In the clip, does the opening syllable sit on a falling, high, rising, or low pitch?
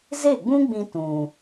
falling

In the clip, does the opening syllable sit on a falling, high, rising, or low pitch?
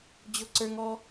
high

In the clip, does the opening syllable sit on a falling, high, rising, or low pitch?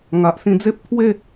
low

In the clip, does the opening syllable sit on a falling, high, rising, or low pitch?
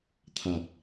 low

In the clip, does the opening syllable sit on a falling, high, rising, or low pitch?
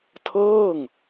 falling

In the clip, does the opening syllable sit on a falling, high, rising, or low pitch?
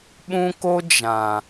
high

